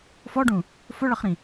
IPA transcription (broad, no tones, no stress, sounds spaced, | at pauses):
f ɔ ɖ ũ | f ʊ ɭ ʌ χ ɾ ĩ